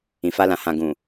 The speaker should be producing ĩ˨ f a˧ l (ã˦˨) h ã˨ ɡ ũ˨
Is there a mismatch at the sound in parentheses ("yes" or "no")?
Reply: yes